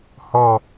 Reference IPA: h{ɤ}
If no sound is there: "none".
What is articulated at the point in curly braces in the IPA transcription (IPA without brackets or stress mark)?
ɔ